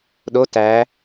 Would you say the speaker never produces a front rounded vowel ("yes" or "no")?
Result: yes